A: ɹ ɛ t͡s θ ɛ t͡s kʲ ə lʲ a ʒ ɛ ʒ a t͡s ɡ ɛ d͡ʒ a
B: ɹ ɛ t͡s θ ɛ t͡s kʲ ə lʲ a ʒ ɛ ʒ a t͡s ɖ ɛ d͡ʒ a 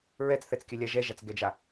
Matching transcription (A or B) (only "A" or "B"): A